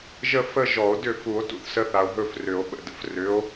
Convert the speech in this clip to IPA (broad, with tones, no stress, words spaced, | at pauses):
ʒə˥ fə˥ʒɔ˨˩˦o̯dʏ˥˨ fu˨˩˦o̯tṵ˥θsə˨˥ θa˨o̯ɦɵ˥˨frʏ˨˩˦o̯ ɓə̰˨də̰˨frʏ˨˥o̯